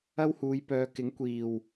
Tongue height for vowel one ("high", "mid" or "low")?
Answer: low